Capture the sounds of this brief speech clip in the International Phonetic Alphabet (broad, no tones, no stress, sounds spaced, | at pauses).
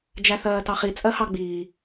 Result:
d͡ʒ æ θ ɜː t ɑ χ i t͡sʼ ɜ h ɑ ɡ͡b iː